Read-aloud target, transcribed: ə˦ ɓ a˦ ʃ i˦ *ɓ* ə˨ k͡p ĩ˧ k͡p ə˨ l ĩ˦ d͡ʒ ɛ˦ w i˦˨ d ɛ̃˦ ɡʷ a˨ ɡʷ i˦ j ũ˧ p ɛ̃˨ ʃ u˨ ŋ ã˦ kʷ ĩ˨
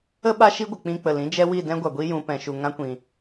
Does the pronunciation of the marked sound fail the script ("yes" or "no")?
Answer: yes